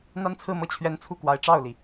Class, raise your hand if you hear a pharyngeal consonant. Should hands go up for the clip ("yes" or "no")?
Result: no